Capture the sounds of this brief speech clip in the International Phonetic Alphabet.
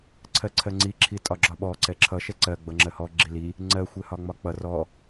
ǀʰɜǀʰɜŋ͡ǀi ǁʰitʼɒɡ͡ǁɒɓɔ ǀɛǁʰʌ ʃɛǀɜ ɡ͡bʌŋ͡ǁɜhɔ ɡ͡ǁili | ŋ͡ǀɜ xʷɛhɒŋ͡mɒk͡pʌ rɔ

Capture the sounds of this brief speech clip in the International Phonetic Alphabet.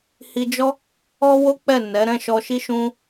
hi˧d͡ʒɔ˦ | ɔ˦wo˦k͡pɛ˦˨ nɛ˨˦ ɾɛ̃˦˨ʃɔ˧ʃi˦ ʃũ˦

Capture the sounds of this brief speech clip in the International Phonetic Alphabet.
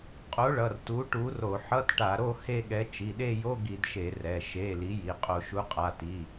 qʼo˨˥ɭʌ˩˧˩r tu˨˥ʈu˨˥ro˧˩˧ ħʌ˧˥˧tʈa˧˩˧ɾo˥˧ he˥˧ɠɛ˨˥ t͡ʃi˩˧˩ɗe˥˧jo˧˥˧ ɡi˧˩˧dʃe˧˩˧ rɛ˩˧˩ ʃe˩˧˩ li˨˥ji˩˧˩ qʼo˧˩˧ʃu˨˥qʼa˩˧˩ ti˩˧˩

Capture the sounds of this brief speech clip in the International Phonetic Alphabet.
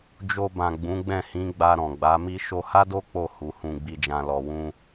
d͡ʒo˧bã˨ ɡ͡bũ˨˦ɡ͡bɛ̃˦˨hĩ˨˦ ɡ͡ba˧ɾɔ̃˨ɡ͡ba˨˦mi˦ ʃo˧ha˦do˦ k͡po˦˨ hu˨ hũ˧ɡ͡bi˧d͡ʒã˧ lɔ˨wũ˧

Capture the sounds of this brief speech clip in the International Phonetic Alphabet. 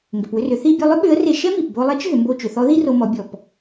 ŋɡʏ˩pwʏ˧rʏ˩˧ θi˧bʲo˧lˠʏ˥ ɓʏ˧˥ə̯re˧ ʃɛ˥mi˩p bo˧lˠe˧˥t͡ʃ ɦʏ˩˧mbo˧t͡ʃʏ˩˧θɔ˧˥ ði˥ro˧mɔ˩˧bʲɔ˩p

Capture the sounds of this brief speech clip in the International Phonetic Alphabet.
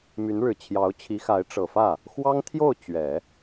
my˧˥nɻɻ̩˨˩t͡ɕʰjɑ˧˥ʊ̯ t͡ɕʰi˧˥xa˧˥ɪ̯ ʈ͡ʂɤ˨˩fä˥˩ | xwɑ˥ŋt̪ʰjo˥˩ʊ̯ t͡ɕɥɛ˨˩˦

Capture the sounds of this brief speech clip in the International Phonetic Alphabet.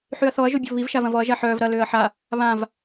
ħyɐ̯θɔɐ̯ ʒobʲɔvβiv ʃavɐ̃vɔɐ̯ ʒaħœːv ɾɐ løːɐ̯ħa | βãv

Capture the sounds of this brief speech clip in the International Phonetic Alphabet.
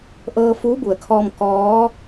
ʔɤː˧fuː˧˥bu˩ə̯kʰɔː˧m kɔː˧˥

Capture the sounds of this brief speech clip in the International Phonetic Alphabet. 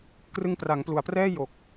krɯ˧ŋpra˩˦ŋplu˩˦a̯prɛː˥˩ jo˨˩k̚

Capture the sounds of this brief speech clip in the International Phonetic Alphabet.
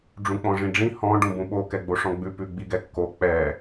ɖ͡ʐũk͡pɔ̃ʐĩɖ͡ʐĩ hɔ̃ ɖũbũɓo kɛɡ͡boʂɔ̃ɡ͡bʉ pʉɡ͡biɡɛkːo k͡pɛ

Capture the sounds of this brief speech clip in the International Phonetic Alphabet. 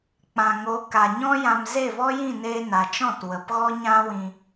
k͡pã˨ŋo˨˦ ka˨ɲɔ̃˦jã˧m ze˦˨vɔ˦jĩ˦˨ neː˦ na˨t͡ʃɔ̃˦˨t wə˨pɣɔ˦ɲã˦wĩ˧

